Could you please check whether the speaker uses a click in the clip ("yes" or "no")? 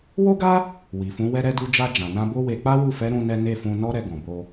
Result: no